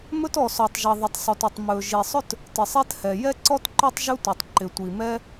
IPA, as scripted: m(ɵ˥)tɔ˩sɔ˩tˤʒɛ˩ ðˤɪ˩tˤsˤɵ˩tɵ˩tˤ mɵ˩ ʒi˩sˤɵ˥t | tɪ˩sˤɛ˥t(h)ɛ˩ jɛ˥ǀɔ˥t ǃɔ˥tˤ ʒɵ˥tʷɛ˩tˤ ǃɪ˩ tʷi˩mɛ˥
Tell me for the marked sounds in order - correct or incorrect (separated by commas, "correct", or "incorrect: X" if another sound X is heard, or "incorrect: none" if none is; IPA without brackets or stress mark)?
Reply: correct, correct